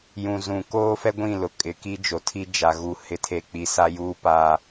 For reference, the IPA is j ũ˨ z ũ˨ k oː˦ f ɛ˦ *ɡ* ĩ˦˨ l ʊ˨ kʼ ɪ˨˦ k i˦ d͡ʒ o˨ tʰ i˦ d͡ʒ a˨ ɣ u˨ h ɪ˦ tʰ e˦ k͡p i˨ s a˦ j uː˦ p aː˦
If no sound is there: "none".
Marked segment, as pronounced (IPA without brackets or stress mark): ɡʷ